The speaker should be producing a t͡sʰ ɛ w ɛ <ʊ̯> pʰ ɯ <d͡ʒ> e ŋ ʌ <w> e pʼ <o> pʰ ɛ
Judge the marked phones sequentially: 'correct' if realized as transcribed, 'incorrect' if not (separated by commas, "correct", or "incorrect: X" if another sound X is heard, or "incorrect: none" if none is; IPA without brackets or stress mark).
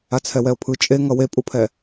correct, incorrect: t͡ʃʼ, correct, incorrect: u